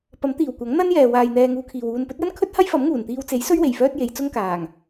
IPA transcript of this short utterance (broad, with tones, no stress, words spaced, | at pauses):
pɐ˨˥mt̪iː˨˩w kʷɐ˨˥ŋn̪ɐ˥njɛː˨waː˨j n̪ɛː˧ŋuː˧kʰiː˨w uː˨npɵ˨˥t̚jɐ˥nkʰɵ˥t̚ hɐ˥jfɐ˨˥mŋuː˨˩n t̪iː˧wt͡se˨˥jsɵ˥ɥwe˨˩j fœː˥t̚je˨˧jt͡sʊ˥ŋkaː˨˩ŋ